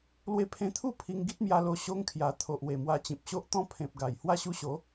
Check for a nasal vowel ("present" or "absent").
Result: present